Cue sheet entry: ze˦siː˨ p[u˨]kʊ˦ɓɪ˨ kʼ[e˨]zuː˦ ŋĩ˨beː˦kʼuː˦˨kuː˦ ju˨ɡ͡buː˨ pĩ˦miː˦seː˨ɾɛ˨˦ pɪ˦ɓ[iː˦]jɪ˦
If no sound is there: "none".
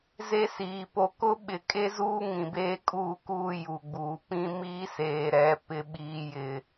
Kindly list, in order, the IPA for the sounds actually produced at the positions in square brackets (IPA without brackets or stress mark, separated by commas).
o˨, e˦, iː˦